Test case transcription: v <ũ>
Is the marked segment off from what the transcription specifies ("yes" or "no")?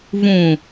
no